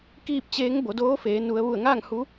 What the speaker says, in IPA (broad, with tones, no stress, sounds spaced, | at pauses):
k iː˥˨ p̚ t͡ɕ eː˧˥ ŋ b o˩˧ d oː˧˥ f eː˩˧ n u˩˧ ə̯ ʋ u˧˩ ə̯ ŋ aː˥˨ ŋ h u˧˥